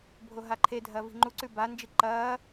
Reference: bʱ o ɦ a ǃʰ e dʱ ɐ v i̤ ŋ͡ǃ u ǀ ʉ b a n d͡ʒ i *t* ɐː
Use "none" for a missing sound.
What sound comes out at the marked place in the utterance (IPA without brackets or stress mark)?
ǃ